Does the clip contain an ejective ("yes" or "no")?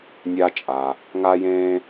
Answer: yes